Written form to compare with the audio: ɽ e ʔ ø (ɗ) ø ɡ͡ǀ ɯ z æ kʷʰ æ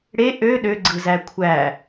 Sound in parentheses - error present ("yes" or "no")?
no